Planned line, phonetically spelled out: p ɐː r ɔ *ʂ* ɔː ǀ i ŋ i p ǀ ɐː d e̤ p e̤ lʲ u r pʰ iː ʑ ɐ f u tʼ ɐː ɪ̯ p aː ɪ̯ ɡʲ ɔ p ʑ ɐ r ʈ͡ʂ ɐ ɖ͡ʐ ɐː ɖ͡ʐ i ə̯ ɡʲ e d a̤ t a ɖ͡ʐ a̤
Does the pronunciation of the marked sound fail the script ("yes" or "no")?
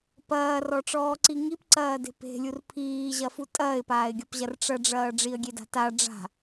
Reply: yes